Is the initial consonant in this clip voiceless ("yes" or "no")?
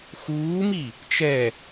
yes